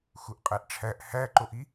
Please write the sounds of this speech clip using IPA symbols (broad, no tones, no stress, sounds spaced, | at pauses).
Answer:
x u ʔ qʼ æ ʔ ʈ͡ʂʰ æ ʔ h æ ǃ o ʔ i